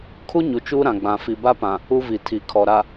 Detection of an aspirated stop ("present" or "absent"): present